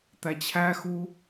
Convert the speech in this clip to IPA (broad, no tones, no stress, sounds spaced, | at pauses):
t̪ æ t͡ɕʰ æ x u